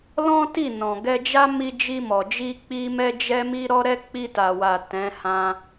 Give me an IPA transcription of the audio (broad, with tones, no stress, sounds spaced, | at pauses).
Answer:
l ɔ̃˦ t i˦˨ n ɔ̃˨ ɡ ɛ˧ d͡ʒ a˦ m i˧ d͡ʒ i˧ m ɔ˨ d͡ʒ i˧ k͡p i˦ m ɛ˦ d͡ʒ ɛ˦ m i˦ ɾ ɔ˦ ɾ ɛ˦ k͡p i˧ t a˨ w a˨ t ɛ̃˨˦ h ã˧